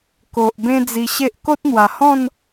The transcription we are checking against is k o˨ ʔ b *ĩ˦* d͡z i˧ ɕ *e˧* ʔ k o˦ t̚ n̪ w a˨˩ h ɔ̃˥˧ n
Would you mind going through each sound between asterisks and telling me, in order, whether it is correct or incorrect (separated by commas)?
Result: incorrect, incorrect